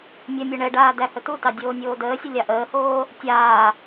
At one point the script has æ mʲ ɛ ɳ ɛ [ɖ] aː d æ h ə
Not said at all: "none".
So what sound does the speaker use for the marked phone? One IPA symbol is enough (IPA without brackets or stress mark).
ɖ